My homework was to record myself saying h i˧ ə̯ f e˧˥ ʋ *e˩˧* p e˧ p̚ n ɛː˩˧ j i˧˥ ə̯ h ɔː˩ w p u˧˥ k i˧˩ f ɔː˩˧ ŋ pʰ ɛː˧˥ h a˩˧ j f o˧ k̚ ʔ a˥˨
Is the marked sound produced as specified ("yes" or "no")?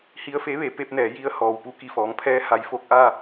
yes